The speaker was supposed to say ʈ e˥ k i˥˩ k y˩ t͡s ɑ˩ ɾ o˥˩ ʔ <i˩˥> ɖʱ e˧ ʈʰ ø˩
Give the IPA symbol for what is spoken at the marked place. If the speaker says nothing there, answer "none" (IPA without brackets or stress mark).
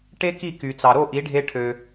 i˩˥